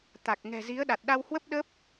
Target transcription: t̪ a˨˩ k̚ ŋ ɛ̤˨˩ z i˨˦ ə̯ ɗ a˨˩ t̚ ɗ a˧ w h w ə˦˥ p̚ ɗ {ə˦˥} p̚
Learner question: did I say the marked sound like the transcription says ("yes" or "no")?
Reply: yes